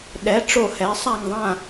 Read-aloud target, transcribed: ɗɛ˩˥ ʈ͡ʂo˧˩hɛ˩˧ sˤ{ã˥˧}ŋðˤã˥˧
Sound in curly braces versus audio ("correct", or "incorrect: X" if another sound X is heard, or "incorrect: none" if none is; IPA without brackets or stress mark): incorrect: a˥˧